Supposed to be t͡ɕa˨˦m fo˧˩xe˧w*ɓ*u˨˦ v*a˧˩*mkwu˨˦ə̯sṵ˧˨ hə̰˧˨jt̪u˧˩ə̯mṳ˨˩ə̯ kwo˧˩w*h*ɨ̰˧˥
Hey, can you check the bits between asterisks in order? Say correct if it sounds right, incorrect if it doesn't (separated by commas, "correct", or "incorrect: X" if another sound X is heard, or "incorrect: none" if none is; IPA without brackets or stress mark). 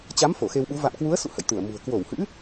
correct, incorrect: a̰˧˨, correct